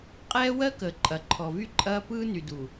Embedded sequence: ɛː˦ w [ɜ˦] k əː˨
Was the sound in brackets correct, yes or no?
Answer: yes